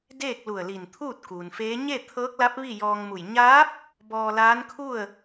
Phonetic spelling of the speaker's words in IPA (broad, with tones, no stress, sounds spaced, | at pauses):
d eː˥˨ k̚ l u˧˩ ə̯ l i˧˩ n t̪ʰ uː˥˨ t̚ k uː˩ n f eː˧˥ ɲ e˥˨ t̪ʰ ɤː˧˥ k̚ l a˧˥ p̚ ʋ i˥˨ j ɔː˧ ŋ m u˧˩ j ɲ aː˧˥ p̚ | b ɔː˧ l aː˧˥ n kʰ u˥˨ ə̯